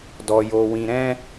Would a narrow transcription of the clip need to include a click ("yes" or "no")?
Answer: no